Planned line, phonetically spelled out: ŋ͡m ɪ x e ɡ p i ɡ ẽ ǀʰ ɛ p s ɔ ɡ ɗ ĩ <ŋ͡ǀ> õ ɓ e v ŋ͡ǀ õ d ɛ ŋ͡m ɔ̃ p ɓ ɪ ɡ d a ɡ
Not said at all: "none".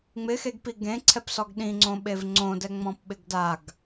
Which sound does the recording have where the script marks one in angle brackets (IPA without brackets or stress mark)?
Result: ŋ͡ǀ